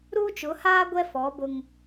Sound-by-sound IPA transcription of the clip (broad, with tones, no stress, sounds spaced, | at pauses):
ɾ uː˦ t͡ʃ ʊ˨˦ h aː˦ ɡʷ ɛ˦ f ɔ˨˦ b ʊ˦ ŋ